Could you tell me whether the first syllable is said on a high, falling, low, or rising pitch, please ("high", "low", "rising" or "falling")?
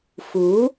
rising